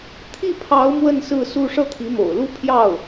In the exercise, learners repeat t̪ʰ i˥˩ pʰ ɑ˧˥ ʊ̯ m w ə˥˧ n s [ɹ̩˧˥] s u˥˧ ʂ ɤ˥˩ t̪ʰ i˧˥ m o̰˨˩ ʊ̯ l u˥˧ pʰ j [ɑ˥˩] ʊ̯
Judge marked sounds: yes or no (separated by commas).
no, yes